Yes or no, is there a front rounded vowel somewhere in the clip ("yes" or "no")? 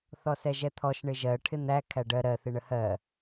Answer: no